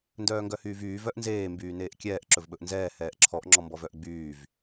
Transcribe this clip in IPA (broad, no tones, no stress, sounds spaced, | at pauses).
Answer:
n d œː ŋ ɡ œ h yː v yː v œ ʔ n z eː m b yː n eː ʔ kʲ ɛː ʔ ǁ ɵ v ɓ ɵ ʔ n z ɛː h ɛː ʔ ǁʰ ɔ ʔ ŋ͡ǁ ɔ m b ɔ v œ ʔ ɡ͡b yː v